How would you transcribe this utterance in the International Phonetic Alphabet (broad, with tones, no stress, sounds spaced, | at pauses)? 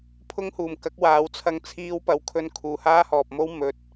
pʰ ʊ˥ ŋ h uː˨ m k ɐ˨˥ k̚ w aː˨˧ w t͡sʰ ɐ˧ ŋ t͡sʰ iː˥ w p ɐ˧ w kʰ ɵ˧ n kʰ uː˨ h aː˥ h ɔː˨ p̚ m o˥ w m ɵ˨ t̚